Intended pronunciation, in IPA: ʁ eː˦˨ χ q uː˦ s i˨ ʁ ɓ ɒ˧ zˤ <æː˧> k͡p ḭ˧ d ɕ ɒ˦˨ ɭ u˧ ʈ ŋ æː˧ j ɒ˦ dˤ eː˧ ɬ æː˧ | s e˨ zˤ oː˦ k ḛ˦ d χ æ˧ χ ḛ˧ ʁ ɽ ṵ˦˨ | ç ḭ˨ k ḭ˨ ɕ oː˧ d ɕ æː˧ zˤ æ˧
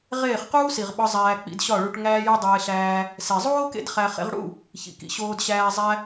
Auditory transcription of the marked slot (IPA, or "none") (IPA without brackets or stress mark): æː˧